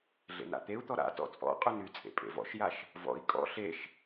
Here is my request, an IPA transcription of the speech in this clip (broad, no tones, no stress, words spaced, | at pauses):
ɮḛna̰t̪eu̯t̪ɔ ɾa̰ tɔ̰t͡sʼɔ̰qʼyn yt͡sʼḛ pʼḛvɔ̰ʃjaʃ | vɔ̰i̯ kʼɔ̰ ɬeʃ